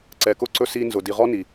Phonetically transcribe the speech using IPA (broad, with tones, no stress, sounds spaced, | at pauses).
ǀ ɛ˨ k ʊ˧ ǀ ɵ˧ s i˧ n z ʊ˨ d i˨ ʁ ɔ˦ n i˨